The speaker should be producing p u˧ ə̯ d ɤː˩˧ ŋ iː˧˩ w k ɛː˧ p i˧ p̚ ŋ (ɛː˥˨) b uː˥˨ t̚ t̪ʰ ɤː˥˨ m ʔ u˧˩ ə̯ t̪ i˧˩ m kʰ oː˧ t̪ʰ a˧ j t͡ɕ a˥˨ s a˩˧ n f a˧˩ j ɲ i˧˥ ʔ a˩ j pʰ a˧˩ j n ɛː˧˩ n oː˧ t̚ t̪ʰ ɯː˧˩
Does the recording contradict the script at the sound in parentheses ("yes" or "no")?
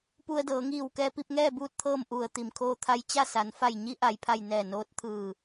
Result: no